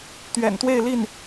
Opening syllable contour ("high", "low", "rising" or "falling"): low